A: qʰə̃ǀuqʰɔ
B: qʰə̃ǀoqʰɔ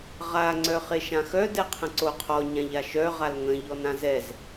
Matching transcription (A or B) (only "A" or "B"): B